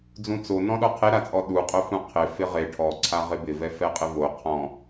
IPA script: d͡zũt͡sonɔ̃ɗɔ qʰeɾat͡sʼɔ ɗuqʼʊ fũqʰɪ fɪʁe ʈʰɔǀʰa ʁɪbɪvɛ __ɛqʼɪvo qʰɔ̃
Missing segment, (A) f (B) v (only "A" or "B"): A